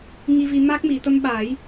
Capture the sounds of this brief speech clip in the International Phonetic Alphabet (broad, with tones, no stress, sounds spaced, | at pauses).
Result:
ŋ i˧ v i˧ m a˦˥ k̚ m i˨˩˨ t̪ ə˧ m ɓ a˨˩˦ j